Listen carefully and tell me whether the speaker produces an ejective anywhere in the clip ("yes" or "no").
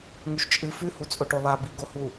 yes